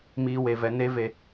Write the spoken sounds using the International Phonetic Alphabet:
miː˨we˨vɛ˨ ne˦ve˦

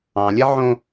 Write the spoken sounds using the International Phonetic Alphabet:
ɑ̃lʲɛ ʕõ

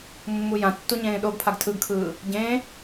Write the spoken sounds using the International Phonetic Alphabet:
mːujãtːu ɲẽːɗoɡpʰaɡ tʰɯɡkʰɯː | ɟẽː

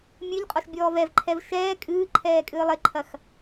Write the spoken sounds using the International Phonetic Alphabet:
mʲɨʎqʼɔʃ bʲɔːvɛvǃʰɛv ʃɛː kʼɨːǃʰɛː kʼɨːlˠeǃʰɐx

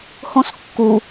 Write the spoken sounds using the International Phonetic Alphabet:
hõskːu

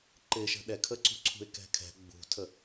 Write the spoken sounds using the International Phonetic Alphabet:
ǃɪʃə̤ ɗɛkʰəǀṳǀʰṳɪ̯ kɛ̤kʰɛ̤ ɡ͡bṳtʰə

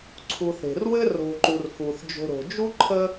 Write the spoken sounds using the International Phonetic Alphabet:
ǀʰu˨θe̤˩rwɘ˥ ro̤˨ǃu˩r xu˩θd͡ʒo̤˨ɾo̤˩ d͡ʒu˥ǃʰə˦

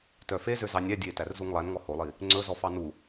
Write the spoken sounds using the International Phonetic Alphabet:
tœfezø zɑnʲæ dʲe tærzuŋlˠænŋɔ holˠi | ŋ͡ǀɵzɔfɑ nu

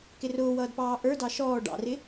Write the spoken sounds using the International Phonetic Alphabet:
kɪrʊːwʌːdpɑː ʔə˞dɑ ʃɔː ɖɑ̰rɪ

